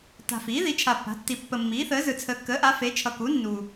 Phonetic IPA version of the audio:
t a̤˨ f iː˩˥ ð i˩˥ t͡ʃʰ a˨ pː a̤˩˥ tː i˨ pː ə˨ mː iː˩˥ θ əː˩˥ z ɯ˨ t͡sʰ əː˨ kː əː˩˥ ʔ a˩˥ f e˩˥ t͡ʃʰ ʌ˨ k u˩˥ nː uː˨

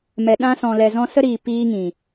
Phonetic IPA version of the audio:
m ɛ˨ ɗ ã˧ s ɔ̃˨ l ɛ˨ z ɔ̃˧ s ə˦ ɾ iː˨ p iː˧ ŋ ĩ˨

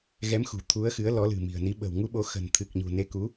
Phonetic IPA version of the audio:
ɣ ɛ˨˦ m x ṳ˨˩ t̪ʰ u˨˦ ə̯ x ɨ˨˦ ə̯ l ɔ˨˦ l ɨ̤˨˩ m i̤˨˩ ə̯ n i˨˦ ɓ ə̤˨˩ w ŋ u˧ ɓ o˨˦ x ə̤˨˩ n t̪ʰ ɨ˨˩ k̚ ɲ ṳ˨˩ n e˨˦ k u˨˦

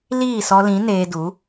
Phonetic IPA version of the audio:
l iː˦˨ s ɔ˧ l ĩ˨˦ n eː˧ d u˨˦

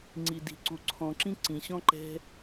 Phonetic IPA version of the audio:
ŋ͡ǀ i˩ d i̤˩ ǀ u˩ ǀʰ ɔ̃˩ ǁ ĩ˥ ǀ ĩ˩ ɕ ɔ̃˥ ǃ ɛ̤˥

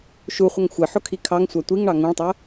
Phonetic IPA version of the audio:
ʃ u χʷ ʌ ŋ xʷ ɪ ħ ʊ kʰ i kʰ ɑ ŋ sʷ ɑ tʷ i ŋ ɳ ɑ ŋ ũ ɭ tˤ ɜ

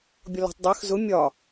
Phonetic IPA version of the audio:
bʲ ɔ l ɔ̤ tˤ dˤ ɜ x z ʊ mʲ ɒ

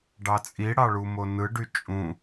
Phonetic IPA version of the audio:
ɖ ɑ t͡sʼ i ɽ ɑ ɭ u m o n ɯ ɖ y t͡ʃʼ ũ

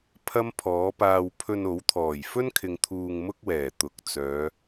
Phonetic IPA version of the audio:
pʰ ɐ˥ m pʰ ɔː˨˥ p aː˧ w pʰ ɵ˧ n o˨˥ w t̪ʰ ɔː˨˩ j f ɵ˥ n kʰ ɪ˨ ŋ t̪ʰ uː˧ ŋ m ʊ˥ k̚ w ɛː˨˩ t̪ ʊ˨˥ k̚ t͡s œː˨˧

